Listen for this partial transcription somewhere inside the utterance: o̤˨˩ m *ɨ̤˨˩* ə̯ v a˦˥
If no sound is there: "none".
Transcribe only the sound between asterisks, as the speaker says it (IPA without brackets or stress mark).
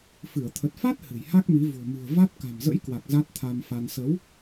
ɨ̤˨˩